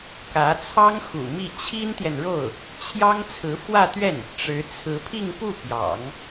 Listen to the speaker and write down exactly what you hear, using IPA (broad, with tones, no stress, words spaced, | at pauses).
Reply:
kä˧˥t͡sʰɑ˥ŋ xṵ˨˩mi˥˩ t͡ɕʰi˥nt̪jɛ˨nɻo˥˩ʊ̯ | t͡ɕʰjɑ˥ŋt͡sʰɹ̩˧˥fwä˥˧t̪ɥɛ˥˩n | ʈ͡ʂɻ̩˧˥ t͡sʰɹ̩˧˥pʰi˥˧ŋpu˥˩ pjɑ̰˨˩˦ŋ